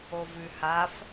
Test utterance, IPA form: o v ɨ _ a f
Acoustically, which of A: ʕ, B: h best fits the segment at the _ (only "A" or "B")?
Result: B